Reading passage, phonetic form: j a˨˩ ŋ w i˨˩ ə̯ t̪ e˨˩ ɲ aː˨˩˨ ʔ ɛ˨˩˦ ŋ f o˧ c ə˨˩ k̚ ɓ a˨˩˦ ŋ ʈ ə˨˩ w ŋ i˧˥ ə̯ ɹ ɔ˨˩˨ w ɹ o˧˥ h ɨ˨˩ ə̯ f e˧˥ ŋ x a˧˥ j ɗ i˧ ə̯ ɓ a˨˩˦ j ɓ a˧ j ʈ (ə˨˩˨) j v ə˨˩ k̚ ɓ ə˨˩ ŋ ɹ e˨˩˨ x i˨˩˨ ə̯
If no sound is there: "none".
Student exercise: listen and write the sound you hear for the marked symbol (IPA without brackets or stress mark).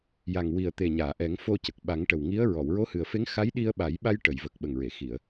ə˨˩˨